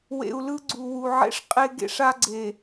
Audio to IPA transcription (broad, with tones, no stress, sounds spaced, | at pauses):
w ḛ˨ u̯ l ɯ˦ ɡ͡ǀ u˨ w u˨ ʕ ḛ˦ ʂ qʼ e˦ ɡ ḛ˦ ʂ a˦ ɡ͡ǀ e˨